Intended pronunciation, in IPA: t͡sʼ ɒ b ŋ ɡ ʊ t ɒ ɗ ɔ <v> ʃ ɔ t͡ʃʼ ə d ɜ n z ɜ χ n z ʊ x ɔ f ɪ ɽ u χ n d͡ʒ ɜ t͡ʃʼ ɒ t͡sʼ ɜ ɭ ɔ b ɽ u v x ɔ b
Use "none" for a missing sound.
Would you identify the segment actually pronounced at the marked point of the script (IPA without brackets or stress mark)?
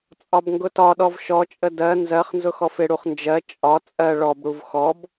v